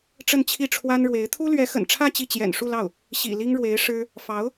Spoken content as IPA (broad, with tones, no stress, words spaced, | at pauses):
ʈ͡ʂə˥˧nt͡ɕʰi˥˩ʈ͡ʂʰwa˥nɻwe˧˥ɪ̯ t̪ʰu˥lɥɛ˧˥xə̰˨˩nʈ͡ʂʰä˥˧ t͡ɕi˥˩t͡ɕjɛ̰˨˩nʂu˥˧lɑ˥˩ʊ̯ | ɕḭ˨˩li˥ŋɻwe˧˥ɪ̯ ʂɻ̩˥ | fɑ˧˥ʊ̯